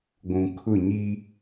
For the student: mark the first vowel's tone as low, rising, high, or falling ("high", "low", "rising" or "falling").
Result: low